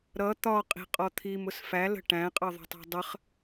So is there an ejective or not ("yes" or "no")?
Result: yes